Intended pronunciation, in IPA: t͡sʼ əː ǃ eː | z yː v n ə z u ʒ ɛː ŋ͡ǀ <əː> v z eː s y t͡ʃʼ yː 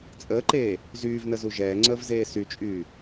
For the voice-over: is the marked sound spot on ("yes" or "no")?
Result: yes